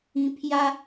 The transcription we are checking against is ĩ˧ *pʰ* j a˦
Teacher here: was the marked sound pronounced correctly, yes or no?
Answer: yes